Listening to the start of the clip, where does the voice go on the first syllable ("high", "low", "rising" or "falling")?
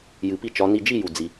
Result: low